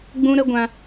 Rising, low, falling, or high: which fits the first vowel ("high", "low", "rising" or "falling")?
high